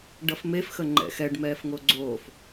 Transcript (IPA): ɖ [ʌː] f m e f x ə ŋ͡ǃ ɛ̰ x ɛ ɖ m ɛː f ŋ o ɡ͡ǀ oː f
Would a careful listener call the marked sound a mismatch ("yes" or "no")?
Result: yes